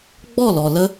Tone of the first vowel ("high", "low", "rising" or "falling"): falling